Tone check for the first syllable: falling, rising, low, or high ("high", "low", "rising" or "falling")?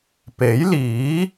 rising